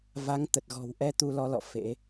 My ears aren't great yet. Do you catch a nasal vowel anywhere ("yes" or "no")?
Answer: no